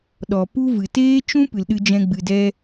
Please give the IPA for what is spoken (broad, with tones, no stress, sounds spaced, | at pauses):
ɗ ɔ˨ p u˦ v ɨ˨ t eː˦ t͡ʃ ũ˦ p ɨ˨ l ɗ ɨ˧ d͡ʒ ɛ̃˧ ɡ͡b ɨ˨ d ɛ˧